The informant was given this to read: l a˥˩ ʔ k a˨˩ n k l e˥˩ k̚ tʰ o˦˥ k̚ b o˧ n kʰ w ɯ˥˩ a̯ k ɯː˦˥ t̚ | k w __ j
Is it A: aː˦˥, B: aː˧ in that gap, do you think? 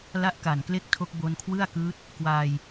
B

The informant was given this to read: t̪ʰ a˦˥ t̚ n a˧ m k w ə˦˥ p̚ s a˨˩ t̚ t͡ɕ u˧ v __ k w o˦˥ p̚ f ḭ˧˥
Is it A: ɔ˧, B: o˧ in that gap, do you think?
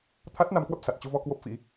A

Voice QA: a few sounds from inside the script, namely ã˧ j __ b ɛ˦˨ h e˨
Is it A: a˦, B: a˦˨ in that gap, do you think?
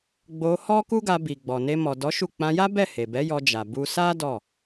A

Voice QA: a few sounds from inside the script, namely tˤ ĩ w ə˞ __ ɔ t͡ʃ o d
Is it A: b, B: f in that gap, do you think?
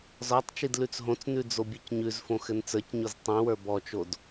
A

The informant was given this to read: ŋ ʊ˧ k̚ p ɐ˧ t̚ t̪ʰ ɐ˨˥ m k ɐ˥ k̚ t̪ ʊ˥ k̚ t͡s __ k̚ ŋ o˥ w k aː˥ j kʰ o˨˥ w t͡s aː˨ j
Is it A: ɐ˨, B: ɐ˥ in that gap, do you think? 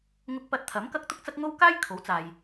B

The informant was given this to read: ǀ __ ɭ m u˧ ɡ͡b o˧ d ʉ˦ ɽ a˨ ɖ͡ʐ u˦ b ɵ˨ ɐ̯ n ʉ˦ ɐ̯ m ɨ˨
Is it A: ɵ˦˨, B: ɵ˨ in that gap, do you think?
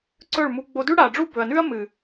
A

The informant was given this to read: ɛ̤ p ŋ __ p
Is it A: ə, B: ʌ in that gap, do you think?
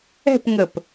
A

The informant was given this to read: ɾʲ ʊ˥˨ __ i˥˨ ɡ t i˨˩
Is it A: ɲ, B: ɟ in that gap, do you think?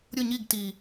A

